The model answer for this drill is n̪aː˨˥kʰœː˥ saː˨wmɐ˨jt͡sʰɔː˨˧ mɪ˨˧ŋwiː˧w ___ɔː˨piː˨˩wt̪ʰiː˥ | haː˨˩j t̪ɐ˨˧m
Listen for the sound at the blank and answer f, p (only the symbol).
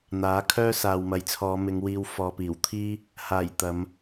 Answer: f